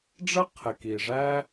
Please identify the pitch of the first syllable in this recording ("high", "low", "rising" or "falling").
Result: high